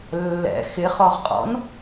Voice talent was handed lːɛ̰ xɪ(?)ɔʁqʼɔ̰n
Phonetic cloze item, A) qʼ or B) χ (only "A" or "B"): B